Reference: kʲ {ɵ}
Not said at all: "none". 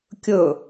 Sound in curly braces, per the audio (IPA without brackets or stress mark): ɵ